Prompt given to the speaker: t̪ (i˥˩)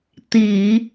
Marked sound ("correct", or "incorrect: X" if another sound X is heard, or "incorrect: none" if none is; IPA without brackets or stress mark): incorrect: i˨˩˦